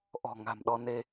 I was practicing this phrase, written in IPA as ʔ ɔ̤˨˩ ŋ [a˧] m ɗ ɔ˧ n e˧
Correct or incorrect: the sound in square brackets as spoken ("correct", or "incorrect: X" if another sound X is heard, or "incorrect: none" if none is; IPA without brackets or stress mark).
incorrect: a̤˨˩